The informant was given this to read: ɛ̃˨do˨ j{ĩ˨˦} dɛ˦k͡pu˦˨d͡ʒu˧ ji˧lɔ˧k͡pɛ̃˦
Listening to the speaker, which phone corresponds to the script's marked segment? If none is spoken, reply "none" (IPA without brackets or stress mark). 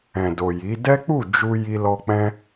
i˨˦